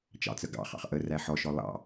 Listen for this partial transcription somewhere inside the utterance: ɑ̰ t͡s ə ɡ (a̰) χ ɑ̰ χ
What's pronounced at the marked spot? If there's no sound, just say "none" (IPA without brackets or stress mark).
ɑ̰